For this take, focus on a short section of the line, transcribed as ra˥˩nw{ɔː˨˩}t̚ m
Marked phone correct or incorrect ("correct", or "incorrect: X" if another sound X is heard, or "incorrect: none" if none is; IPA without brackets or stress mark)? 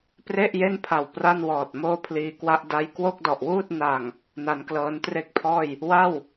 correct